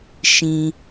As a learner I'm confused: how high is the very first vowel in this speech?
high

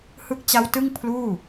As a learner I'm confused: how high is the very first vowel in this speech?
high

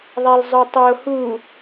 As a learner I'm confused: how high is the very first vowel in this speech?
low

